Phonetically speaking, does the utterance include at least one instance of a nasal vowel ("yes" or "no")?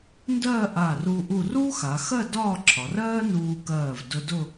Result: no